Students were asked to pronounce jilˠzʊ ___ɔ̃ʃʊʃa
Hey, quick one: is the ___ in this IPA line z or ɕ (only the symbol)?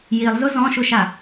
z